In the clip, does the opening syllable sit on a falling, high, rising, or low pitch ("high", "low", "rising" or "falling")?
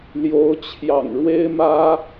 rising